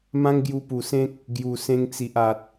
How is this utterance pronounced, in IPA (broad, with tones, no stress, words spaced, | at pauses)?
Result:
mã˦ŋɡju˧pu˨˩sẽ˦k̚ | ɡju˨˩ sẽ˧ŋt͡si˨ʔa˨t̚